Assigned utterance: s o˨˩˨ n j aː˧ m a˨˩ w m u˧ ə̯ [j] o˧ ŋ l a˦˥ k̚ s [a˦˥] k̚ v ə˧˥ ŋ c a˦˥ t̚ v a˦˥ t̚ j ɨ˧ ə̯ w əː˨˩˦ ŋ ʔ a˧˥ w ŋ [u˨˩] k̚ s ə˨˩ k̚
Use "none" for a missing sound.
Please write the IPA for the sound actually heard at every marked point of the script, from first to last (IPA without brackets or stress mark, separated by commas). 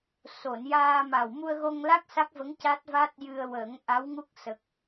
ɣ, a˦˥, u˦˥